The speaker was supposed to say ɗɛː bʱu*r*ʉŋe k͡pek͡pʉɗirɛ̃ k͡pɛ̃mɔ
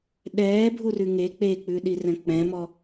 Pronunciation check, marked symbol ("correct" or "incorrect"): correct